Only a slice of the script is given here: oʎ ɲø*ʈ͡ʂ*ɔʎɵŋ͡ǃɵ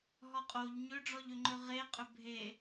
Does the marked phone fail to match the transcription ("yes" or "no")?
yes